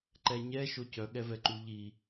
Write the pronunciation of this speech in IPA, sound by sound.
ǃ ɛ ɲ ɛ ʃ o c œ ɠ ɛ v ɛ ǃ u ʎ i

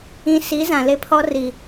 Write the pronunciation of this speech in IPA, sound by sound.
ĩ˨ s i˨˦ z ã˨ l e˦ pʰ ɔ˦ r i˨

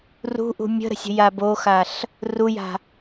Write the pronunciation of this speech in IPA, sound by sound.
r ṳ ʔ ṳ mʲ ə̤ ɾ ə̤ sʲ ə̤ j a b o x a ɬ | r u j a̤

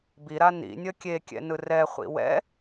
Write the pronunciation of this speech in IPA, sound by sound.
b i ɾ a n ḭ nʲ ʌ kʲ e kʲ ɛ̰ n ɯ r ɛ χʷ ḭ w ɛ̰

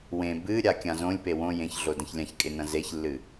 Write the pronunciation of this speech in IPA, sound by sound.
w ẽ b ɨ ɾʲ a kʲ ã z õ lʲ p e w õ j ẽ ç ɮ o d ɐ̃ ç lʲ ã ç kʼ e n ɐ̃ z e ç lː ɨ

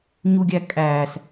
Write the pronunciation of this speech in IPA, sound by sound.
ɲ u ɡʲ æ kʼ æː s

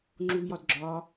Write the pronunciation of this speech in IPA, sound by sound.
ŋ͡ǁ u v j ɒ d ɡ͡ǁ ɒ

